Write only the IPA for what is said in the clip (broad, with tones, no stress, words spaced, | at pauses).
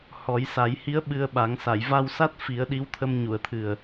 hɔ˨˩˦jsa˨˩˦jhi˧˥ə̯ ɓɨ˧ə̯ɓa˨˩˦ŋ sa˨˩˨jva˧wsa˦˥t̚ fi˨˩˦ə̯ ɗi˧˥wt̪ʰə˧m ɲu˨˩˨ə̯t̪ʰɨ˨˩ə̯